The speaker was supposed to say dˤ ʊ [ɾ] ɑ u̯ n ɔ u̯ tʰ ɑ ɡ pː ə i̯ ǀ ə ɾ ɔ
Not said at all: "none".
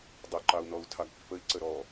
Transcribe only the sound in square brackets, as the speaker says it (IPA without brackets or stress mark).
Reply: ǃ